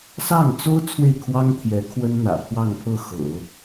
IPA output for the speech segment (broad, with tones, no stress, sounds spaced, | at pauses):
s ɑ˥˩ ŋ t͡s o˥ ʊ̯ t͡sʰ w e˥˩ ɪ̯ kʰ w ɑ˥ ŋ t̪ʰ j ɛ˧˥ kʰ w ə˥ n n̪ ä̰˨˩ pʰ w ɑ˥˧ ŋ pʰ ɤ˥˩ x ɤ̰˨˩˦